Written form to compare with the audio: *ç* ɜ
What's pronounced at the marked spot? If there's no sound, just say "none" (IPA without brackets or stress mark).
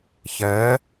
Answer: ç